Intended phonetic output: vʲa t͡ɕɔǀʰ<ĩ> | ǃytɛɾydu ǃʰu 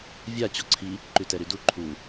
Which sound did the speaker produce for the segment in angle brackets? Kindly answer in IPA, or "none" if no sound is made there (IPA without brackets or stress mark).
i